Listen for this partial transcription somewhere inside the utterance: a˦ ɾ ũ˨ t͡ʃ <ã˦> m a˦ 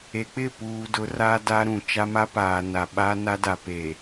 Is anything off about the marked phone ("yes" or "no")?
yes